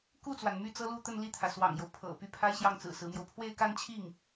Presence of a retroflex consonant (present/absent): absent